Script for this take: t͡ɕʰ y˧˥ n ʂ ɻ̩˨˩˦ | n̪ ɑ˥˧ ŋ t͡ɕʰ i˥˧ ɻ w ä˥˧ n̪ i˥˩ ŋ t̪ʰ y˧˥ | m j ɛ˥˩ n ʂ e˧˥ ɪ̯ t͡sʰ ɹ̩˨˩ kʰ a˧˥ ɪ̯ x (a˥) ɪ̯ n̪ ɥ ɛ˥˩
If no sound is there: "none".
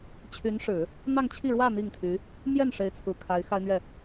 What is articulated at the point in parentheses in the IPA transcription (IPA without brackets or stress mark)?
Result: a˥